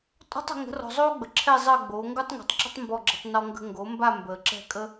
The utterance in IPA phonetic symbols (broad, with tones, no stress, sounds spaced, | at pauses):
tʼ ɔ̤˥ tˤ ə̤˩˥ ŋ ə̤˩˥ r ɔ̤˨ zˤ oː˥ ɡ͡b ə˨ ǁʰ ɛ˥˨ zˤ əː˥˨ ɡ͡b oː˩˥ ŋ ɡ o˥ tˤ ŋ ṳ˨ tˤ ǁ ə̤˥ tˤ m b ɔ˥˨ ɡ͡ǁ ə̤˥˨ tˤ n ɔ˥ ŋ ɡ ə̤˥ ŋ ɡ o˩˥ m b a˥˨ m b əː˨ ǁ ɛ̤˥˨ kʼ ə˥